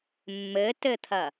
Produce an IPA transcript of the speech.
mː ɘ t ɘ t̪ʰ ɐ

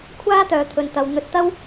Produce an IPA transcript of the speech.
kʷʰ aː˥ t̪ œː˨ t̪ʰ ɵ˨ n t̪ ɐ˨ w n̪ ɵ˧ t̚ t̪ ɐ˥ w

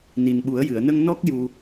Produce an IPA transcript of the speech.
n i˨˩ n ɓ u˨˩˦ ə̯ j ɨ˨˩˨ ə̯ n ə˧ ŋ n ɔ˦˥ k̚ j u˧

